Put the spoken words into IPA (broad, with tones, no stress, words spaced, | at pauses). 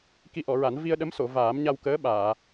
ki˧ʔɔ˨˩˨ɹa˨˩˦n vi˧ə̯ ɗə˧˥mso˨˩˨ vaː˨˩˦mɲa˧w kəː˧˥ ɓaː˨˩˨